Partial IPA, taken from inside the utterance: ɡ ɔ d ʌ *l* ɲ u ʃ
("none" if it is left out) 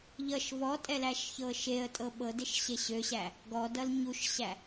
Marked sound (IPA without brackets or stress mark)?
l